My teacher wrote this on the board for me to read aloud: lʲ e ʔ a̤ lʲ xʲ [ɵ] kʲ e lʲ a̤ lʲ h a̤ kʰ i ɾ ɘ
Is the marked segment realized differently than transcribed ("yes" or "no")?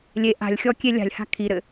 yes